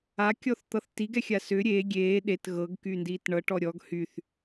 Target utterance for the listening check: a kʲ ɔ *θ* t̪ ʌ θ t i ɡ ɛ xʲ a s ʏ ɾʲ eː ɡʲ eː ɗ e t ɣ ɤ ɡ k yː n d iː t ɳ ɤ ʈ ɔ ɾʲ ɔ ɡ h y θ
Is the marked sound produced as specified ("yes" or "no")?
yes